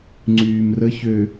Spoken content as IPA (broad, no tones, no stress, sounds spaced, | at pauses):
ŋ͡ǀ yː m r ə ç ø